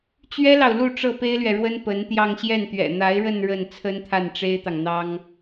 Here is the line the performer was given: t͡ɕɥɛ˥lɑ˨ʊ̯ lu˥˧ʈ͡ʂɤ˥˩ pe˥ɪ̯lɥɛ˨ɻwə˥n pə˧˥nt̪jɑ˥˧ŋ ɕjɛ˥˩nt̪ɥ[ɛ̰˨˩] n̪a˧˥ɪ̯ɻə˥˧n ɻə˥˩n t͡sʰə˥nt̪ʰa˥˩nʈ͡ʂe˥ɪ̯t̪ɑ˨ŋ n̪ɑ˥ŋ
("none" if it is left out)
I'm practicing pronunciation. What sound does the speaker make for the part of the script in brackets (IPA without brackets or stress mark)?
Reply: ɛ̰˨˩